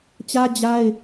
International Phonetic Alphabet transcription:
t͡ɕ ä˦ d͡ʑ a˦ ɪ̯

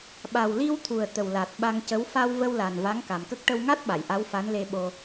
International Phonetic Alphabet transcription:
ɓ a˨˩ w l i˧ w t̪ʰ u˨˩ ə̯ t̪ ə˨˩ w l a˨˩ t̚ ɓ a˧ ŋ c ə˧˥ w f a˧ w v ə˧ w l a˨˩ n v a˧˥ ŋ k a˨˩ m k ə˦˥ k̚ ʈ ə˧ w ŋ a˦˥ t̚ ɓ a˨˩˨ j ʔ a˧˥ w f a˧˥ n l e˧ ɓ o˧

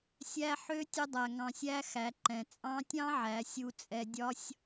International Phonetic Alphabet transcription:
sʲ æ˧ ħ ø˧˥ tʲ ə˧ dˤ æ˩ ŋ ɑ̃˩ sʲ æ˧ x æ˩˧ ǃ ɛ̃˩ t͡sʼ ɑ̃˧˥ tʲ ɑ̃˥ ʕ æ˩˧ sʲ u˧ t͡sʼ ɛ˧ dʲ ɒ˥ sʲ

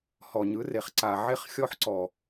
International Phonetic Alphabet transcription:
h ɔ˨ ɲ ɯ˨˦ r e˨ χ ǀ a˨ ʕ e˦ χ xʲ ɔ˦ ħ ǀ ɔ˨

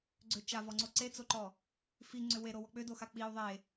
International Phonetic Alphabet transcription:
ɡ͡ǀ ʏ t͡ʃ a v ɔ ŋ͡ǀ o ǀ e t͡s o ǃ ɔ | f i ŋ͡ǀ ʏ w e ɾ o w ɔ k͡p ʏ d o x a k͡p i u̯ ðˤ e

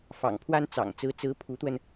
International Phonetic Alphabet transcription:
f ɑ̰˨˩ ŋ pʰ w a˥ n t͡s ɑ̰˨˩ ŋ t͡s ɹ̩˧˥ t͡s ɹ̩˧˥ pʰ u˧˥ t̪ w ə˧ n

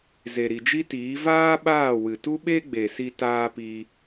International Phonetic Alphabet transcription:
z e˨ ɾ i˨ d͡ʒ i˦ t iː˨˦ v aː˦ ɓ aː˦˨ w ɨ˨ t u˦ ɓ e˦ ɡ͡b e˨ s i˧ t aː˧ p i˧

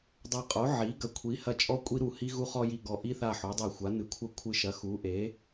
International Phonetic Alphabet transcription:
dˤ a˧˩ qʼ o˩˥ ʕ i˩˥ ɡ ɐ˧˩ kʷʰ i˩˥ h ɐ˧˩ t͡ʃʼ ɔ˦ kʷʼ i˦ ɾ u˧˩ h i˦ ɣ u˦ χ ɔ˦ j i˧˩ ɡ ɔ˧˩ ʔ i˦ θ a˧˩ ħ o˩˥ dˤ i˧˩ xʷ a˩˥ n ɨ˩˥ kʷʰ ɐ˦ kʷʰ ɨ˧˩ ʃ ɐ˩˥ x u˩˥ ʔ e˩˥

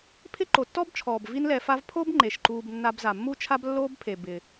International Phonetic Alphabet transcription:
pʰ ɪ˥ ǃ o˩ tː ɔ˥ b t͡ʃʰ ɔː˩ b v i˦ n l ɛ˨ f a˦ v pʰ o˥ b ŋ͡ǃ e˩ ʃ ǃ uː˨ b nː a˨ b z a˩ mː u˦ t͡ʃʰ a˦ b lː oː˥ b pʰ e˩ b ɪ˩

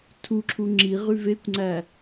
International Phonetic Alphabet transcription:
tʰ u ǁʰ u ŋ͡ǁ i ʁ y v e kʷ ŋ͡ǀ æ

